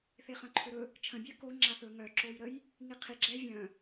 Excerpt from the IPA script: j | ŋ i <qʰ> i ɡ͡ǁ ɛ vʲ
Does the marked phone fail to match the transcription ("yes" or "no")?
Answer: no